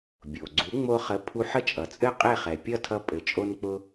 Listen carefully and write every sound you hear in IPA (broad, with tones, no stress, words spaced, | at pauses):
bʲo˩ ɡ͡ǀu˩˥ŋ͡mo˧χə˩˥ pʰu˧ħə˥˩t͡ʃʼʌ˩t͡sʼɘ˥˩ qʼe˥˩χɛ˩pʲʌ˥˩tʰʌ˧ pʼɘ˩t͡ʃʼo˧n k͡pʊ˧